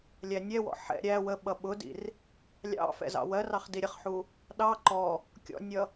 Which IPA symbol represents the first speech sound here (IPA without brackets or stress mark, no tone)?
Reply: lʲ